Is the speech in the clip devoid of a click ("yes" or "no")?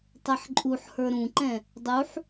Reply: no